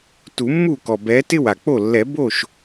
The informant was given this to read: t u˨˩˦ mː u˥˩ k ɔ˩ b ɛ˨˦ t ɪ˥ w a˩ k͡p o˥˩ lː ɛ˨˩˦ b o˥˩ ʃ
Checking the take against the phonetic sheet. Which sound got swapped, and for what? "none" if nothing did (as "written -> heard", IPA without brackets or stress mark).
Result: none